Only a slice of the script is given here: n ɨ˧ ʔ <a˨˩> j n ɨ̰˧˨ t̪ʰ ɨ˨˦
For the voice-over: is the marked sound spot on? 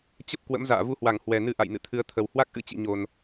no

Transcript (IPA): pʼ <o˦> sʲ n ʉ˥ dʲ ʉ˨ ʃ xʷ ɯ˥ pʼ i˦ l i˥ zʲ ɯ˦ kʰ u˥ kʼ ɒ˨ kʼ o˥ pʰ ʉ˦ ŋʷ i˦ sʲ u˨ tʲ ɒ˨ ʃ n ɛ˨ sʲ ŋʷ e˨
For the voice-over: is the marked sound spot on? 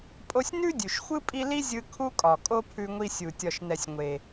yes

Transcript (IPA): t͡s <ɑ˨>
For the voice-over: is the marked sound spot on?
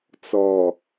no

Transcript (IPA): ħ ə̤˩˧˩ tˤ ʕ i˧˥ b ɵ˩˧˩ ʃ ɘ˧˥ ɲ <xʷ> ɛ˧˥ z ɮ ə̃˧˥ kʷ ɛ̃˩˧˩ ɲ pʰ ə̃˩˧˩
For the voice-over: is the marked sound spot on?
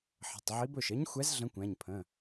yes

